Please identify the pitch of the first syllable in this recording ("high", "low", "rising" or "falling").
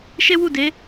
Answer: high